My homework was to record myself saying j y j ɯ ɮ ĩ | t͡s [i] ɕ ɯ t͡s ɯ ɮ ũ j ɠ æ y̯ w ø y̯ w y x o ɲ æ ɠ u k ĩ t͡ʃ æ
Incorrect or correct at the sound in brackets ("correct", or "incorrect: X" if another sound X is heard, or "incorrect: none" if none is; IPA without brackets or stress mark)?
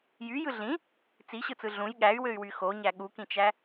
correct